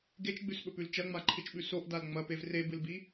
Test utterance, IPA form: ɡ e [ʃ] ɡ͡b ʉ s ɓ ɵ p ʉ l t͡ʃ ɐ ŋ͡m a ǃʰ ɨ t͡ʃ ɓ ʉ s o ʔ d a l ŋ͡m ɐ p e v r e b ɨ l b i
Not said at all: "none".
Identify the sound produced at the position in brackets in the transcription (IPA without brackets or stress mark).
t͡ʃ